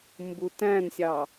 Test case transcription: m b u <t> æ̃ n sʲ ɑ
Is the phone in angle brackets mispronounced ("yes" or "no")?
no